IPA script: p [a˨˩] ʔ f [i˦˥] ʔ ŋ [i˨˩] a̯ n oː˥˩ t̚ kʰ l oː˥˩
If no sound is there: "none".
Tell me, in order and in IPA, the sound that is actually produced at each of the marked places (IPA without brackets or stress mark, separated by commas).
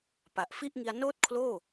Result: a˨˩, i˥˩, i˧